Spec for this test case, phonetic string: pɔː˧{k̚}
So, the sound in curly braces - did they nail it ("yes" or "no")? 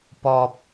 no